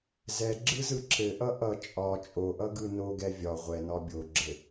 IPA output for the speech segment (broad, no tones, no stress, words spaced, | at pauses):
zɛɡ͡ǁɯzɯ ǁɘʔʌ ʔʌ t͡ʃʼɒ t͡ʃʼoʔʌɡɯ noɡɛ vʲɒ ʁʷɛnɒ bʲoɡ͡ǁɘ